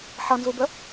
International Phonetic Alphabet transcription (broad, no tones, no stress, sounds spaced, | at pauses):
ħ ʌ n z u b ə